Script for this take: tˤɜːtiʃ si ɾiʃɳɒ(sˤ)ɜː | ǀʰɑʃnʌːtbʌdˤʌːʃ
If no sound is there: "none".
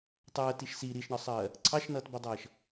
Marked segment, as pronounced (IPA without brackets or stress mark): sˤ